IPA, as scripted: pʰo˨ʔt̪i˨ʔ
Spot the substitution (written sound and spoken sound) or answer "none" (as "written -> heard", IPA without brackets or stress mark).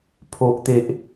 i˨ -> e˨